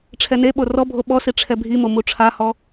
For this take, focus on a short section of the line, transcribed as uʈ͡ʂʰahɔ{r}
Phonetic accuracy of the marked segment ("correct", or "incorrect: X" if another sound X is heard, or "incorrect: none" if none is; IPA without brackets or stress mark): incorrect: none